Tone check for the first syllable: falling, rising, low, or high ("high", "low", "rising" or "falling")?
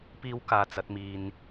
high